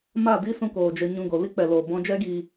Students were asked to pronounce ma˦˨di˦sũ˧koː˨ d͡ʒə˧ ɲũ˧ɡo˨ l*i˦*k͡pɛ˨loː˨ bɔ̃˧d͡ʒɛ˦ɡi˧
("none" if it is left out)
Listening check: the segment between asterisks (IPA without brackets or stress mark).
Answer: i˦